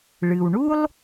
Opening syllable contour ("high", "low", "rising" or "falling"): low